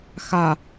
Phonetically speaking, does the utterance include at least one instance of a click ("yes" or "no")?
no